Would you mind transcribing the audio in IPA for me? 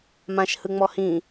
m ã ʃ h ɯ ŋ͡m ɔ h ĩ

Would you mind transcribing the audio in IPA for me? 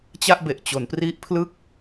t͡ɕ a˥˩ ʔ b e˨˩ ʔ t͡ɕ o˩˦ n p r i˦˥ ʔ pʰ l ɯ˥˩ k̚

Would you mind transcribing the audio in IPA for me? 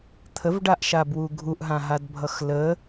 t̪ʰ ə v ɖ a ʔ ʃ a b w u ɡʱ u ʔ ɦ ã ɦ a d bʱ ʌ x l ə

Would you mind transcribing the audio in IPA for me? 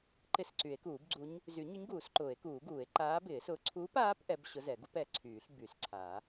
ǃ ɪ˧˥ s ǀ y˨˩˦ e̯ k uː˨˩˦ b ɡ͡ǀ u˧˥ ɲ | z y˨˩˦ ɲ ʊ˧˥ ɲ ɡ uː˨˩˦ s ǃ ʊː˨˩˦ e̯ k uː˨˩˦ ɡ uː˨˩˦ e̯ ǃ aː˧˥ b ɪː˨˩˦ s ʊː˧˥ ǀʰ uː˧˥ p aː˧˥ p ʔ ɛ˧˥ b ɕ ʊ˧˥ z ɛ˨˩˦ ɡ u˧˥ p ɛ˨˩˦ ǀʰ yː˨˩˦ ɬ b y˨˩˦ s ǀʰ a˨˩˦

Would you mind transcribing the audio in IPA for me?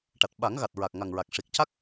ʈ a˨˩ t̚ ɓ a˨˩˦ ŋ ɣ a˨˩ t̚ ɹ a˨˩ k̚ ŋ a˨˩ ŋ ɹ a˨˩ k̚ ʂ i˨˩ k̚ c a˦˥ k̚

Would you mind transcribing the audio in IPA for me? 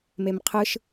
m e m qʰ ɯ ʃ

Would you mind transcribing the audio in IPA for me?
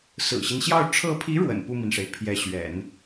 s ɹ̩˨˩ ɕ i˦ n ɕ j ɑ˥˩ ʊ̯ ʈ͡ʂʰ ɤ˧˥ pʰ i˧˥ ɻ w ə̰˨˩ n p u˥˩ m i˩ n ʂ e˩ ɪ̯ pʰ j ɛ˧˥ ɕ ɥ ɛ̰˨˩˦ n

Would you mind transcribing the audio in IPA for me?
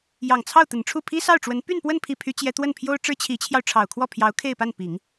j ɑ˨˩ ŋ t͡sʰ ɑ˥˩ ʊ̯ t̪ ə˨˩ n ʈ͡ʂʰ u˥˩ pʰ i˥ s ɑ˥˩ ʊ̯ ʈ͡ʂ w ə˧˥ n p y˥˧ n p w ə˥˧ n pʰ i˥˩ pʰ y˥ t͡ɕ j ɛ˥ t̪ w ə˥˩ n pʰ j o˥ ʊ̯ ʈ͡ʂ ɻ̩˥ t͡ɕʰ i˧˥ t͡ɕʰ j ɑ˧ ʊ̯ ʈ͡ʂʰ ɑ˨˩ ʊ̯ kʰ w ɔ˥˩ pʰ j ɑ˧˥ ʊ̯ kʰ e˥˧ ɪ̯ p a˥˩ n p i˨˩˦ ŋ

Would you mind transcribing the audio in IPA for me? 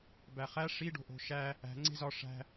b æ χ æ ʂ i ɖ o̤ ʔ o̤ ʃ æ | æ̤ ŋ͡ǀ e̤ z ɒ ʂ æ̤

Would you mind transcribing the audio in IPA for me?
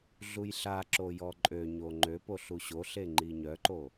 ɮ u j ɬ a ǁ o j ɔ ǃʼ ø ɲ o ŋ͡ǃ ø p o ɬ u ɕ o ɬ e ŋ͡ǃ i ɲ œ ǃ o

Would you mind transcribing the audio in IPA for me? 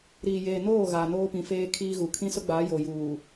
ɾ iː˨ j eː˨ n oː˦˨ ɣ a˨ n oː˦ p ĩ˨ f eː˦ kʰ iː˦ ɣ u˨ kʰ ĩ˦ s ʊ˦ ɡ͡b aː˨˦ j o˨ j uː˨

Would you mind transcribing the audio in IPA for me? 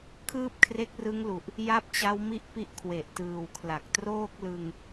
kʰ ɯː˥˩ p̚ kʰ r e˦˥ k̚ r ɯ˦˥ ŋ l u˨˩ ʔ | j a˥˩ p̚ t͡ɕ a˦˥ w m i˥˩ ʔ p i˦˥ ʔ kʰ w e˨˩ ʔ t ɯː˨˩ w kʰ l a˨˩ k̚ t r oː˥˩ k̚ l ɯ˧ ŋ

